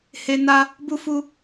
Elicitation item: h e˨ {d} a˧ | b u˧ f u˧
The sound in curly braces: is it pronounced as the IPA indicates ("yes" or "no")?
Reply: no